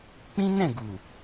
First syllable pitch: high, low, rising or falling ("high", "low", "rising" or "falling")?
high